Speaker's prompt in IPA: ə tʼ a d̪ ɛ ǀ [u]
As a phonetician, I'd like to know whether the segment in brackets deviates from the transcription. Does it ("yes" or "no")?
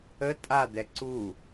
no